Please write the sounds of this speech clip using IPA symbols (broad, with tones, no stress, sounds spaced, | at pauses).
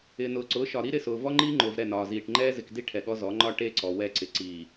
ɪː˨ n ʊː˨ ǀ ʊː˨˦ ʃ ɒ˨ ɾ i˦ ɾ ɪ˦˨ s ʊː˨ v ɔ˦ ŋ͡ǃ iː˦ ŋ͡ǃ ʊː˨ v ɾ ɛ˦˨ n ɒː˨ z iː˨ ʈ ŋ͡ǃ ɛː˦ z ɪ˨ k d i˦ ʈʰ ɛ˨ ɠ ɔ˦ z ɔ˨˦ ŋ͡ǃ ɒ˦ ʈ e˦ ǀ ɔ˨ w ɛ˦˨ ǀ ɪ˨ ǀ iː˨